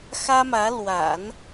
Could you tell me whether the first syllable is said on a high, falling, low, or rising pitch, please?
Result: high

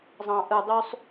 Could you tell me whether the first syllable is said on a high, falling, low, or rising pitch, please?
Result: low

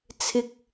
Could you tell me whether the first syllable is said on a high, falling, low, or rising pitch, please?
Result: low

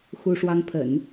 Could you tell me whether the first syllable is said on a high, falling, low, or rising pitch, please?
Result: high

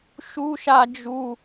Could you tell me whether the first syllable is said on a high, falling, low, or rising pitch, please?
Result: high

